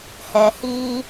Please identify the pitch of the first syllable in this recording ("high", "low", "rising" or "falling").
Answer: low